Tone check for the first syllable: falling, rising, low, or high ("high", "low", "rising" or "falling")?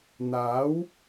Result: rising